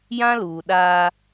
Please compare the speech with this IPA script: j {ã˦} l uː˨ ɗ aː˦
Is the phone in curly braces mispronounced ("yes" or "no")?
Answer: no